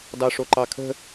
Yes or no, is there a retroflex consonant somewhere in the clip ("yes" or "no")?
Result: yes